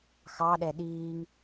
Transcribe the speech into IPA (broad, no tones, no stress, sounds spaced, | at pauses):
x ɑ ɗ ɛ ɗ iː ŋ